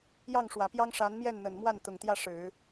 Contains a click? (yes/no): no